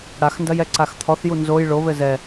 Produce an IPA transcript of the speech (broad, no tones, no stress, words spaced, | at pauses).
ɽaxndɐjɛǀax t̪ʰɔθju nzoj ɭoβɘ zɛ